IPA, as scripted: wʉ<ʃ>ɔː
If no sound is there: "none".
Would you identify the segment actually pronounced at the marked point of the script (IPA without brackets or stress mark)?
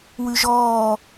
ʒ